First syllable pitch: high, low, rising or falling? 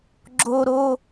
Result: high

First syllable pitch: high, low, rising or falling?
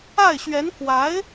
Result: falling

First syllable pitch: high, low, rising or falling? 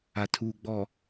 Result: low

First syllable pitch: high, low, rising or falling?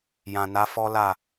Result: low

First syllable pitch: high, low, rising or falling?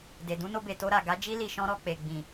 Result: low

